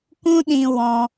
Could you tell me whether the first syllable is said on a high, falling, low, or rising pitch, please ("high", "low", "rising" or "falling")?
high